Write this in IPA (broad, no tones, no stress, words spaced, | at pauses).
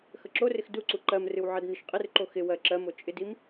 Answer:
xəǁorɪx duǀu ǃɜmrɨw ʕɜdnɨʃqʼɪrǃo xɪ wɜǁɜmo t͡ʃʼɪdim